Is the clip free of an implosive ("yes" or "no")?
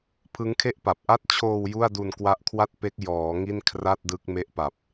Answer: yes